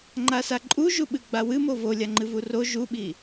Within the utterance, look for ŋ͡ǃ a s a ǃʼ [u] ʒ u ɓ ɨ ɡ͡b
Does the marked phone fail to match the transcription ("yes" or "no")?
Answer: no